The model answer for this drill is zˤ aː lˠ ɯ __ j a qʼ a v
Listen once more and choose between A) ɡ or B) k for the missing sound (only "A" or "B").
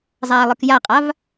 B